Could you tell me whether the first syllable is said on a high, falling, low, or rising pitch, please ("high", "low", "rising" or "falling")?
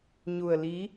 low